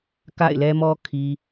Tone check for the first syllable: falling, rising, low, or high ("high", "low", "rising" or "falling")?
falling